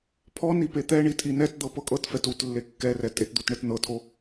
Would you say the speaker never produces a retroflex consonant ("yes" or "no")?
no